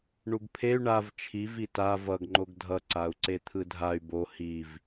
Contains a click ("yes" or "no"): yes